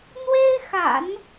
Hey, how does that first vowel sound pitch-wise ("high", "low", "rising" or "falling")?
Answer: high